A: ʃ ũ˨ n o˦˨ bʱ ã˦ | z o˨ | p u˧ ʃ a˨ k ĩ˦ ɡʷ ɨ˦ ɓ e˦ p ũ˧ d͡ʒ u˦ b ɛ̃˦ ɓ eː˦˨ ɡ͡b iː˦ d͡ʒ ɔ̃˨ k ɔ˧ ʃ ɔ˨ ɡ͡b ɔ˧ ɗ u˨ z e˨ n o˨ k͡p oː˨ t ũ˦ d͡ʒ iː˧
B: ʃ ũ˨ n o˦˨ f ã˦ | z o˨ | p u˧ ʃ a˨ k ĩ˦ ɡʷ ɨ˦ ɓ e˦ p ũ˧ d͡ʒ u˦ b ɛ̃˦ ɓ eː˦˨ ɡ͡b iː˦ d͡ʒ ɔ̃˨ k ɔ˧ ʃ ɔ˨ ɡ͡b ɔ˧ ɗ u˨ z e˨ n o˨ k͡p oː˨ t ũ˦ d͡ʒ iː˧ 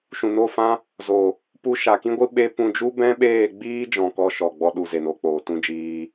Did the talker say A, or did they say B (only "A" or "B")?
B